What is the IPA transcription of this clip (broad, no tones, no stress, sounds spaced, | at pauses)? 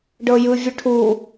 ɖ ɤ j ɯ vʲ ɯ ʈʰ u